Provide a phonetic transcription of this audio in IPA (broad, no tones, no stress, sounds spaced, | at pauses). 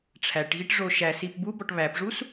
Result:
ʈ͡ʂʰ æ ʈ ɣ i ʈ ʐ o ʃ æ s i p b u b ɔ ʈ β æ p ʐ u s